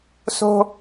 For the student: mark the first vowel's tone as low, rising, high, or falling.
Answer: high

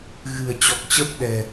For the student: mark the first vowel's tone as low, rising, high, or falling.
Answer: low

